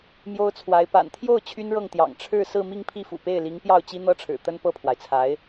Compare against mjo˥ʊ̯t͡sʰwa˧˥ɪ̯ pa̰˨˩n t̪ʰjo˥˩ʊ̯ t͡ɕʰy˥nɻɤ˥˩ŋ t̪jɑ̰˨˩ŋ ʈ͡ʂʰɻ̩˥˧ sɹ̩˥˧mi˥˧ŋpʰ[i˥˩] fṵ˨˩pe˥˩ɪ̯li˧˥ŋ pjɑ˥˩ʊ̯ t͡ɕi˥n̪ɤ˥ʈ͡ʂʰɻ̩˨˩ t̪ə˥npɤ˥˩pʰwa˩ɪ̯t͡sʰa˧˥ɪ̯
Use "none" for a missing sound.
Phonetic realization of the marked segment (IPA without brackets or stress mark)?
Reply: i˥˩